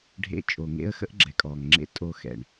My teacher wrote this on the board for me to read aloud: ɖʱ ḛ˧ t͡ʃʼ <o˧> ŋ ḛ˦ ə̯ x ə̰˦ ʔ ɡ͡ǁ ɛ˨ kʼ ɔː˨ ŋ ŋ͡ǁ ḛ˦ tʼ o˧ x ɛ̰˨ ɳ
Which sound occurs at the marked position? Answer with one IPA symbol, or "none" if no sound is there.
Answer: o˨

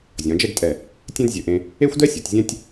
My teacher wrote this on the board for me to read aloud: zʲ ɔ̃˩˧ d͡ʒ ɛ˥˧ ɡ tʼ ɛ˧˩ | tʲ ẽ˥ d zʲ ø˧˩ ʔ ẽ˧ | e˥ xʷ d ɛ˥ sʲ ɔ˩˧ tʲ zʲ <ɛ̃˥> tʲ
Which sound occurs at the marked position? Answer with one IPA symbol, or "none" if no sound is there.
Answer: ɛ̃˥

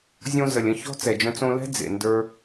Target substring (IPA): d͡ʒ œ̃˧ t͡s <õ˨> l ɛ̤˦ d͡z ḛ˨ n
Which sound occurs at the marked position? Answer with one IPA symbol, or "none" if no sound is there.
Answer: õ˧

